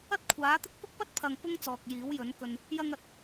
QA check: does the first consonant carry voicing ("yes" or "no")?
no